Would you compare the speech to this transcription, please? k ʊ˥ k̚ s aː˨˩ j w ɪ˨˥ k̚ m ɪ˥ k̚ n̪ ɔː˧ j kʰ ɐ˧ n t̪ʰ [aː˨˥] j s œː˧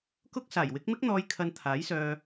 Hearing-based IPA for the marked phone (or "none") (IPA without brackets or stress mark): aː˨˥